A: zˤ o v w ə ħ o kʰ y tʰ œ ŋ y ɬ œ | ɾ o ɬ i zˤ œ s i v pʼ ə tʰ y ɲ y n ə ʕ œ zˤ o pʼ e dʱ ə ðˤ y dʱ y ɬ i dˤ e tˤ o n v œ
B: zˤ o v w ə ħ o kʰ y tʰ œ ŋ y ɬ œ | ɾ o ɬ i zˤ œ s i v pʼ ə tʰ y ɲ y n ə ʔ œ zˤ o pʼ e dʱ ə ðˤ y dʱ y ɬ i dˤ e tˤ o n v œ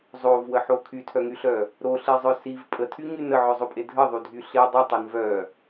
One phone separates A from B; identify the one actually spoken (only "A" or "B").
A